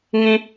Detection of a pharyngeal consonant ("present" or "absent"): absent